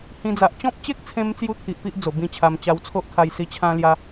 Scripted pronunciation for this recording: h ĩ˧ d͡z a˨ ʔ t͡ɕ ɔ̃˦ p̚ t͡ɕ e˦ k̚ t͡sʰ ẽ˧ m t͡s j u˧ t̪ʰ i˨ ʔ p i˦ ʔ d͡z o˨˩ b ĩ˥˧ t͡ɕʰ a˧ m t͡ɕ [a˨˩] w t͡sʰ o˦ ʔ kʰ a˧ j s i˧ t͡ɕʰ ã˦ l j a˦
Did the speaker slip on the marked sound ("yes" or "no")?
yes